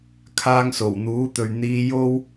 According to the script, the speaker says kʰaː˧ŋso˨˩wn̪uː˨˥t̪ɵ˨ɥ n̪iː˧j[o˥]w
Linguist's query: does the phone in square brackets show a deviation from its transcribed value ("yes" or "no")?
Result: no